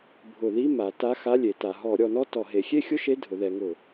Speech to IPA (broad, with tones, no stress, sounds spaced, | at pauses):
bʱ ʊ˧˩˧ ð i˧˥˧ m a˩˧ t a˧˥˧ x a˧˥˧ lʲ e˩˧ t a˩˧ ɦ ɔ˧˩˧ ɾʲ ɔ˩˧ n ɔ˥˧ t ɔ˧˩˧ ɦ e˩˧ xʲ e˥˧ xʲ ʊ˥˧ ʃ e˧˥˧ dʱ ʊ˩˧ ð ɛ˩˧ ŋ ʊ˧˩˧